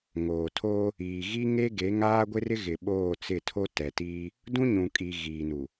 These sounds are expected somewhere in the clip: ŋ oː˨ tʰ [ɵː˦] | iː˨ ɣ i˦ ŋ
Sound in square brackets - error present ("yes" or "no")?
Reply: yes